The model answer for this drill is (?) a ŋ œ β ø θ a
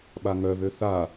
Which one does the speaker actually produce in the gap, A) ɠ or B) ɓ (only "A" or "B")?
B